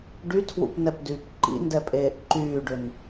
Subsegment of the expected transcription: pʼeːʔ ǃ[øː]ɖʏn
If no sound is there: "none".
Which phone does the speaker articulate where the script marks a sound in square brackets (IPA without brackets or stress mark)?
yː